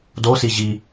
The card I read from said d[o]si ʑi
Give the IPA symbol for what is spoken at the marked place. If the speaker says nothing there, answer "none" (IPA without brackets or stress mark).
o